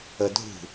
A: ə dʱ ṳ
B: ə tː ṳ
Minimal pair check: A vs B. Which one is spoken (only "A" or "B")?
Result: A